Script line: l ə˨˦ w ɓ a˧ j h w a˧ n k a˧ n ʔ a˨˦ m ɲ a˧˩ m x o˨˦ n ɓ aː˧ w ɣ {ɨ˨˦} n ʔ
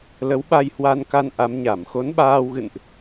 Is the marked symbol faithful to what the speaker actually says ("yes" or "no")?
no